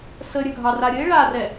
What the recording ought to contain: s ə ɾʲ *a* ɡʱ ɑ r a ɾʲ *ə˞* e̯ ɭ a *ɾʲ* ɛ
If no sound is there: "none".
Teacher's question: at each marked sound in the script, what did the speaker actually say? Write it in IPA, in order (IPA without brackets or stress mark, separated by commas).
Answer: ə, ə, r